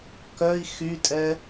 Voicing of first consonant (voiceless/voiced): voiceless